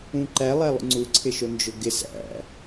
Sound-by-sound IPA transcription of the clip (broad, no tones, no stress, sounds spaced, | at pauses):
ũ ǃ æ lˠ æ lˠ ṵ ŋ͡ǀ u ǀʰ ɪ ʃ o n d͡ʒ ʊ ɡ ɪ s æ̰